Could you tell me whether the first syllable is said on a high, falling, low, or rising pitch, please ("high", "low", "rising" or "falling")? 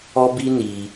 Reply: high